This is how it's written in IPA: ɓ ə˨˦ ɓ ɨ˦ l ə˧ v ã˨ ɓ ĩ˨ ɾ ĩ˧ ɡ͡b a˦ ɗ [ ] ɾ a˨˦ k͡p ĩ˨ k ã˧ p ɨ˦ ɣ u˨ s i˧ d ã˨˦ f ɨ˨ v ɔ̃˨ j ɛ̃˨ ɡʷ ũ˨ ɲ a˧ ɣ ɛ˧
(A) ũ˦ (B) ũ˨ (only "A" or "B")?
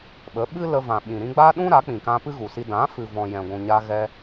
A